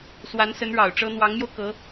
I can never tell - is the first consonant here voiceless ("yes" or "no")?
yes